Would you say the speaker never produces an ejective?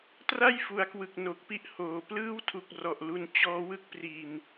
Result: yes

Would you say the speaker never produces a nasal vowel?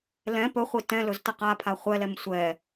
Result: no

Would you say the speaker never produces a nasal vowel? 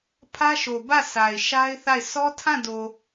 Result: no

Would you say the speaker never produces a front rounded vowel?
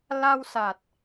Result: yes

